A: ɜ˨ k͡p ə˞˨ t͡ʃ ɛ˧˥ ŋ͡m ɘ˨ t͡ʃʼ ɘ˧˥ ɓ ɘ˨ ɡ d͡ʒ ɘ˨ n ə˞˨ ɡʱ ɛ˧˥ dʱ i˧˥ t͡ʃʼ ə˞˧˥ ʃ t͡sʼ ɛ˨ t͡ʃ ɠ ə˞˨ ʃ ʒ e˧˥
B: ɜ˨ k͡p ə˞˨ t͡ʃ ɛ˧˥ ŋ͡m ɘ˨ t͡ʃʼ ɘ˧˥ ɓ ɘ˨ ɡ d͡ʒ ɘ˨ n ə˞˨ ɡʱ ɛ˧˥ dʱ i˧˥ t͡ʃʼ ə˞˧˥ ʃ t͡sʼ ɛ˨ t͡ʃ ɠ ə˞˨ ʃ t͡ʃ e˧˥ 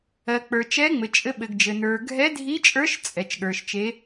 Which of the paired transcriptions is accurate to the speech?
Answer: B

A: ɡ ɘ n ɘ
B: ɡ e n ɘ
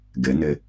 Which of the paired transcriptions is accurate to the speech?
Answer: A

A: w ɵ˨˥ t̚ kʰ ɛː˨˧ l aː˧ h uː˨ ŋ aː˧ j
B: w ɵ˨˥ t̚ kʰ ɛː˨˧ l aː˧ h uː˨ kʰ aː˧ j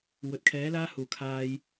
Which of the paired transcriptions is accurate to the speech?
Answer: B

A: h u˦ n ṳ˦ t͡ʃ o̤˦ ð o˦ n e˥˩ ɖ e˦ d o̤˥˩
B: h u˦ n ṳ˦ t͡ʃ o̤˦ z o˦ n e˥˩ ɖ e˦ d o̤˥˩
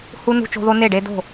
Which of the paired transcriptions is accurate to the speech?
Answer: A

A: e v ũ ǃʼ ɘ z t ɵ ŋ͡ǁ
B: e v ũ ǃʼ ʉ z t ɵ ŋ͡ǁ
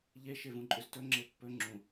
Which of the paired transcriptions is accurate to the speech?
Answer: B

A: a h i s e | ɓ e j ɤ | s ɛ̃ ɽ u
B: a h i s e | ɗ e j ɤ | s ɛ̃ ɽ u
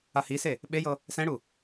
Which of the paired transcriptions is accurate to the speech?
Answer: A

